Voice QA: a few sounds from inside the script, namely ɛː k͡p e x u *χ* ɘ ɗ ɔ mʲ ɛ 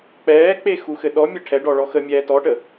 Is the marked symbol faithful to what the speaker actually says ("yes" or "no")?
no